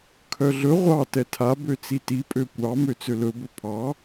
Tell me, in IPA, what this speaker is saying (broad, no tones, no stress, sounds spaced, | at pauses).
kʰ œ ɮ ɵ ʁʷ ɑ t ɛ tʰ a b ø t͡s i t i pʼ ø kʷ ɑ m ø t͡s ø l ɵ b ɵ pʰ ɑ